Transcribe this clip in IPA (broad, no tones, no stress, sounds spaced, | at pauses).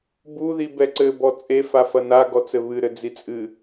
b u ð i b ɛ ǀ ɘ b ɔ t͡sʼ e f a f ɐ n a ɡ ɔ t͡s ɘ β ɨ ɾ ɘ d͡z i t͡sʼ ɨ